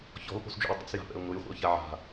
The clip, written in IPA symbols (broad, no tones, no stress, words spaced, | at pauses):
çɔ̤lpo̤sd͡ʒṵj dˤɛ̰sja̤pɛ̰ʊ̯ ŋʊjχʷɛ̰ʊ̯ça ʕa̤